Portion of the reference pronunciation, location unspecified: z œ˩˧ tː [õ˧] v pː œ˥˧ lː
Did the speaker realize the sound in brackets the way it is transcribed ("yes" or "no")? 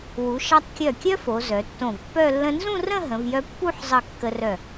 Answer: no